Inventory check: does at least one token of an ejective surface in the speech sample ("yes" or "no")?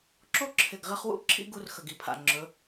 no